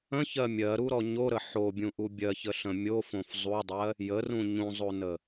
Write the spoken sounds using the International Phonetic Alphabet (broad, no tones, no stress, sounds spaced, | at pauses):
ə̃ ç ɜ mʲ ɜ ɾ u ɾ ɔ ɲ o ɾ ə ħ o bʲ ũ ʔ u bʲ ɜ ç ə ɬ ə̃ mʲ o f õ f zˤ u dˤ ɜ | j ə r ũ ɲ ũ zˤ o n ə